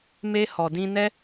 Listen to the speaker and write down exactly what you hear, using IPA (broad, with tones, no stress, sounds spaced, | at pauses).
m e˧ h ɔ˨ d ĩ˧ n ɛ˦